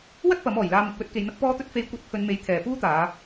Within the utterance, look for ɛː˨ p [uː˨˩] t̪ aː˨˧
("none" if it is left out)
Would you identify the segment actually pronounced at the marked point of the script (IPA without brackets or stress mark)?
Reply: uː˥